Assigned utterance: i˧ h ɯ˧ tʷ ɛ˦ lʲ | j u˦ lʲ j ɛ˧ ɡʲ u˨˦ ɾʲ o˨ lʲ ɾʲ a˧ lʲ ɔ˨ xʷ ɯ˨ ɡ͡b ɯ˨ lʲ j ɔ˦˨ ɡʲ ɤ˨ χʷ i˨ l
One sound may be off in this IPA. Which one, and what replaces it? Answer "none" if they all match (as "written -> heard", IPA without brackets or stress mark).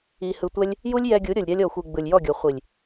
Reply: l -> lʲ